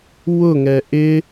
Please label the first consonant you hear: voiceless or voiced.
voiced